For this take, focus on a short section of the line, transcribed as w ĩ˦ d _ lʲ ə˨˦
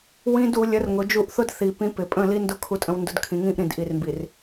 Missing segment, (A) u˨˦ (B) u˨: A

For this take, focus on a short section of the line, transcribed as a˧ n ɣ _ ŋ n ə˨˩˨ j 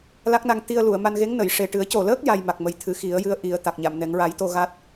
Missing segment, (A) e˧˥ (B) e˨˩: A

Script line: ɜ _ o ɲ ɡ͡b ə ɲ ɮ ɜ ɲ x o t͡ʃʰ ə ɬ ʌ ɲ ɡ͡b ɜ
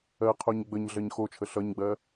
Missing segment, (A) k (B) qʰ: B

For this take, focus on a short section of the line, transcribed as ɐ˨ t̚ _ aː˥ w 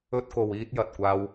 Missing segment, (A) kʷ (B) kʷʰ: A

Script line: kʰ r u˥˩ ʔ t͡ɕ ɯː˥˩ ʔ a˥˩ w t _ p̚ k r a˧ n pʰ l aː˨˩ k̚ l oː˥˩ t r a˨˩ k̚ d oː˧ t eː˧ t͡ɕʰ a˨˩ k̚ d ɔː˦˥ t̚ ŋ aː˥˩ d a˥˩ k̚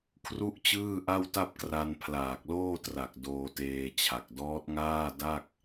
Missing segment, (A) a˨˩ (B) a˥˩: B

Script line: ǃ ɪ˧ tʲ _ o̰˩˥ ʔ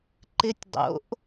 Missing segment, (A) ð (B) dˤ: B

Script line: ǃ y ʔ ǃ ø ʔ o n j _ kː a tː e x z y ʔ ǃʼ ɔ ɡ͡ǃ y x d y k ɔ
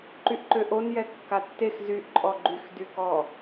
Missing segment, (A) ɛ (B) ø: A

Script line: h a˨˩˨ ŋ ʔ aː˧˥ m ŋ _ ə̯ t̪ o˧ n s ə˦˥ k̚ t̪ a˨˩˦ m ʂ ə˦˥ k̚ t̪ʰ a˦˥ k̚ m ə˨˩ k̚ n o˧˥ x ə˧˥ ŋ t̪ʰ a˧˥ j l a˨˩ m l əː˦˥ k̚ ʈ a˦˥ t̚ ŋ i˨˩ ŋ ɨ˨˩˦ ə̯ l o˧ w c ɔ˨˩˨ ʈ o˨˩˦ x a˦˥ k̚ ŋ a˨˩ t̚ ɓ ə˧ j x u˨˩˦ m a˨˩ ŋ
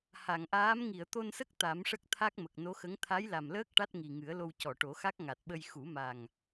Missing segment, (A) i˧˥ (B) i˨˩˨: B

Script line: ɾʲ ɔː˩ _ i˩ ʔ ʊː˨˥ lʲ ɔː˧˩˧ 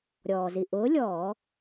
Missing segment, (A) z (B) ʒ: A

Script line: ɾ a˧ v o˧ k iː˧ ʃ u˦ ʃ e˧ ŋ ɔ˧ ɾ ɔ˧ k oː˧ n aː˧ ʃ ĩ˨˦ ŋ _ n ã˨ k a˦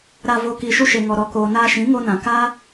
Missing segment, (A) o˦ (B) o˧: B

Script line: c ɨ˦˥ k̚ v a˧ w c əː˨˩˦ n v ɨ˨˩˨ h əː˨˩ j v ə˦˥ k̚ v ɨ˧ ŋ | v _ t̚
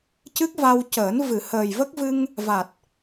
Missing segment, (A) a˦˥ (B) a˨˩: B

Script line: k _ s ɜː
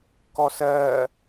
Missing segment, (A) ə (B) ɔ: B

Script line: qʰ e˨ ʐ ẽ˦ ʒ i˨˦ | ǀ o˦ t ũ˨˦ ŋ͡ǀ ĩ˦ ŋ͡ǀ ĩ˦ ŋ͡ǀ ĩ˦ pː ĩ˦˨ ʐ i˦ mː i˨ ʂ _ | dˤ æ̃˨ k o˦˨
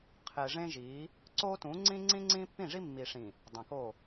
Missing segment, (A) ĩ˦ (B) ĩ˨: B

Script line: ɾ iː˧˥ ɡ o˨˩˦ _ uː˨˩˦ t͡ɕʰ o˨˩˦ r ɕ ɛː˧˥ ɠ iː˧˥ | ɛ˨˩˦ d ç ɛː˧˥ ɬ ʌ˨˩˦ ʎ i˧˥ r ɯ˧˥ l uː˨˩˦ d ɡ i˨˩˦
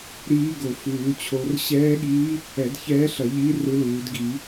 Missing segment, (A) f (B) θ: A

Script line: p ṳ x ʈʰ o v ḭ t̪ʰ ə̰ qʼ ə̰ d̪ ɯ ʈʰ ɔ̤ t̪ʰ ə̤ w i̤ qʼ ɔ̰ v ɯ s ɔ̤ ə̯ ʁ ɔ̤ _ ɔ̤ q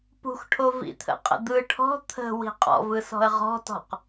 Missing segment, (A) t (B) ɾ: A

